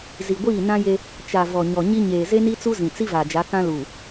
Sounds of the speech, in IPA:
zi˨ɡʷiː˦˨ nã˦je˦ | t͡ʃa˨ vɔ˨ɲɔ˨ɲi˦ ɲeː˨ze˦ni˦ t͡su˦zĩ˨t͡si˦va˨ d͡ʒa˨˦kã˦luː˨

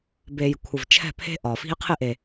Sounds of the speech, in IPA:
be˨j kʷʰɪ˨vt͡ʃʰɛ̤˦˨ pʰe̤˦ʔɒ˨ fi̤˧e̯qʰɪ˦˨ʔe˨

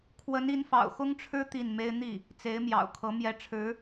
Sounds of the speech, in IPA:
kʰwə˧˥ni˧˥nfɑ̰˨˩ʊ̯ xʊ˥ŋʈ͡ʂʰɻ̩˥ t̪i˥˩nme˥ɪ̯ n̪i˥˩ | t͡se˧˥ɪ̯mjɑ̰˨˩ʊ̯kʰɤ˧˥ mjɛ˧˥ ʈ͡ʂʰɻ̩˧˥

